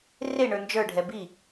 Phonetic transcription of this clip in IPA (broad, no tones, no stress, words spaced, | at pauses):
reɳə˞ nd͡ʒə˞ɖʱɛ bi